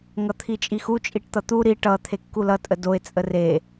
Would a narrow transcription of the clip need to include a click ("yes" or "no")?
no